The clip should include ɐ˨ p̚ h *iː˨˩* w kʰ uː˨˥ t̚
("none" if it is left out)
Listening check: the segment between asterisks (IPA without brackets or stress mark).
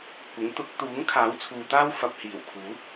iː˨˩